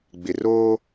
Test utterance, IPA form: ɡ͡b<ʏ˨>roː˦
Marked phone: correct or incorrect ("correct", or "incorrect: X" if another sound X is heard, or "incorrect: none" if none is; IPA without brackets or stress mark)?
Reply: incorrect: ɪ˨